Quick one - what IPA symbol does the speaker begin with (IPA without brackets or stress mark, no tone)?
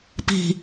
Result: p